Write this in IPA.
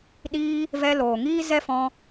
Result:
ɗ iː˧ | v ɛ˧ l oː˨ ŋ iː˦ z ɛ˦ f ɔ̃˧

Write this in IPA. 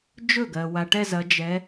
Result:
d͡ʒ ɵ˥˩ ɡ ɜ˩ w a˩ ʈ ɛ˥˧ z ɐ˩˧ d͡ʒ ɛ˩˧

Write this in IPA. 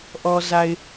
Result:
ʔ ɔ˨ z a˨ ɪ̯

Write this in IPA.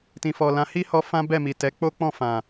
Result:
t ĩ˨ f ɔ˨ l ã˧ h i˦ h ɔ˧ f ã˦ b ɛ˦˨ m i˨ t ɛ˨˦ k͡p o˦ k͡p ɔ̃˦˨ f ã˨

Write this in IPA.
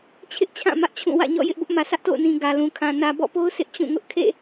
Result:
t͡ɕʰ ɪ˦ ʔ t͡ɕʰ ã˦˨ m ä˦ ʔ t͡ɕʰ ũ˦˨ w ä̰˦˨ ɲ ɔ̰˦˨ j ɪ˦ ʔ b ʊ˦ ʔ m ä˨ s ä˦ ʔ t o̰˦˨ ʊ̯ n ĩ˨ ɡ ä˨ l ũ˨ kʰ ã˨ n ä˨ b ɔ̰˦˨ p o˦ ʊ̯ s ɪ˦ ʔ t͡ɕ ũ˦˨ ŋ ʊ˦ ʔ kʰ ḛ˦˨

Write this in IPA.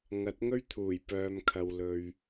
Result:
ŋ ɐ˨˥ t̚ ŋ ɵ˥ ɥ t̪ʰ uː˨˩ j p œː˨ m kʰ ɐ˨ w l ɵ˨ ɥ

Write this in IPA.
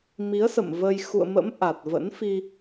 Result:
m i˨˦ ə̯ s ə̰˧˨ m v ə˧ j x ṵ˧˨ ə̯ m ə̰˧˥ m ʔ a˨˩ t̚ v ə̰˧˥ n f i˧

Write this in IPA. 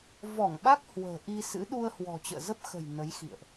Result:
v ɔ˧˩ ŋ ɓ a˦˥ k̚ h w ə̤ː˨˩ ʔ i˧ s ɨ̰˧˥ ɗ u˧ ə̯ h w ɔ̤˨˩ t͡ɕ ə̰ː˧˨ z ə˦˥ p̚ x ə̤˨˩ j n ə˨˦ j x ḭ˧˨ ə̯ ʔ

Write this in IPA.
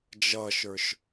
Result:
d͡ʒ ʌ ʃ ə˞ ʃ

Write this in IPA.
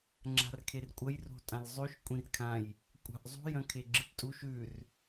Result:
ŋ͡ǁ a̤ r kʰ e r kʷʼ ɐ j r o̤ tʼ ã l zˤ ʉ ʃ kʷʼ ĩ r kʰ ã j | kʷʼ a̤ ʔ zˤ ṳ j ɐ̃ kʰ e ɡ͡ǁ ɨ p tʼ u ʃ ʉ r

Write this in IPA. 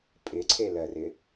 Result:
pʼ ɪ ǀʰ e l ɜ r ɪ

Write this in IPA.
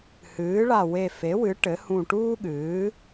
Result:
h ɨː˩˥ ɭ a˧˩ w e˧˩ f e˩˥ w ɨ˩˥ ʈ ɘ˩˥ h ũ˧˩ ʈ uː˥ ɠ ɨː˩˥

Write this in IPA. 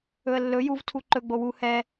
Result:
ɵ ə̯ lː ɵ j u v tʰ u ǃ ɵ ɡ͡b o w u h ɛ

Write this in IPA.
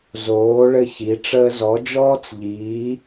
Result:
z oː˨˥ ɭ ɘ˦˨ ç i˨˥ ʈ͡ʂ əː˥ z ɔ˨˥ d͡ʒ ɔː˥ t͡s ʎ iː˨˥

